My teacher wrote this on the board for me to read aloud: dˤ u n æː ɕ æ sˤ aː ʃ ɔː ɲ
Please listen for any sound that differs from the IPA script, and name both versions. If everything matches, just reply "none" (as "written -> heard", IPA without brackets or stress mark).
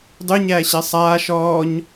n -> ɲ